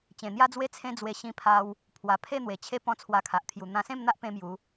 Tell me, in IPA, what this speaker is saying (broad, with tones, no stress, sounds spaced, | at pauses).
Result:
t͡ɕ ẽ˨˩ n̪ j a˦ d͡z w e˦ t͡sʰ ẽ˦ d͡z w e˧ ɕ ĩ˧ pʰ a˧ w | pʰ w a˨˩ pʰ e˥˧ n̪ w e˨˩ t͡ɕʰ e˦ p ɔ̃˦ t͡sʰ w a˧ kʰ a˨ ʔ t̪ʰ j u˨˩ n̪ ã˧ s ẽ˥˧ m n̪ a˦ ʔ p ẽ˦ m j u˨˦